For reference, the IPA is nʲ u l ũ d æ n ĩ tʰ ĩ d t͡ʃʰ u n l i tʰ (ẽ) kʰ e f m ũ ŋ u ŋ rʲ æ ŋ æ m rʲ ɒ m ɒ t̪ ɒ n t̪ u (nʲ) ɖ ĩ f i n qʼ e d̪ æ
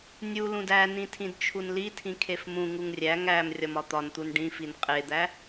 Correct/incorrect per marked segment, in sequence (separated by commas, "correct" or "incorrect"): incorrect, incorrect